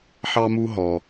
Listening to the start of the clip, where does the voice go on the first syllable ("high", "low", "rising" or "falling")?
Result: high